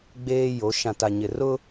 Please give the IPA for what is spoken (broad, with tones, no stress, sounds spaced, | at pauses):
ɡ͡b eː˦ j o˨˦ ʃ ã˨ t a˨ ɲ ɪ˨ r ʊ˦